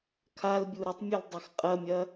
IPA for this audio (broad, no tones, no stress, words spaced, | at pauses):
kʰalbʲu ɾɘtˤmʲul dˤɛxqʼɐmʲɐ